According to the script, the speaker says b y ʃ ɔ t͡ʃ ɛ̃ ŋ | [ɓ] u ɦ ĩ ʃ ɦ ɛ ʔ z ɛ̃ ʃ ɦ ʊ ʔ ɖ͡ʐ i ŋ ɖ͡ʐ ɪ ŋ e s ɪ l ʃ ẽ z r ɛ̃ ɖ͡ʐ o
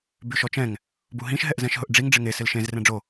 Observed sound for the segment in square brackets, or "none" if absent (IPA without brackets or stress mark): b